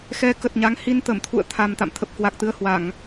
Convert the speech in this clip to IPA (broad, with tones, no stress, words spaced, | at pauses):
xɛ˨˦kə˨˩t̚ ɲa˨˦ŋhi˧n t̪ə˧˩mt̪ʰṵ˧˨ə̯t̪ʰa˨˩m t̪a̰˧˨mt̪ʰə˨˩p̚ kwa˨˩k̚t̪ɨ˧ə̯hwa˧˩˨ŋ